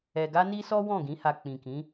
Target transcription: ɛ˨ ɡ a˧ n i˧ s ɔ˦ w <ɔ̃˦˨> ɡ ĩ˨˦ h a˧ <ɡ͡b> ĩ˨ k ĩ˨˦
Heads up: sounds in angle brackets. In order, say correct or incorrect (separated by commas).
correct, incorrect